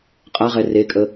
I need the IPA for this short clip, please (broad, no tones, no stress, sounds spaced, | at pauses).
qʼ a ʁ ɛ r e kʼ ə